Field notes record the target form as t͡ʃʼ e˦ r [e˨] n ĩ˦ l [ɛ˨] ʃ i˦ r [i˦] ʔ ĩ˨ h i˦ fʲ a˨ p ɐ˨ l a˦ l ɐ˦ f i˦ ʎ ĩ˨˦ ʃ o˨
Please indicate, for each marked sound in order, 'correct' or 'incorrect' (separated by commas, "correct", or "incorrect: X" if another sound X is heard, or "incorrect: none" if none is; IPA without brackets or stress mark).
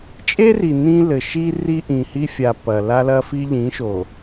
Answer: incorrect: i˨, incorrect: ɘ˨, correct